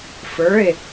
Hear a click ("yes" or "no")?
no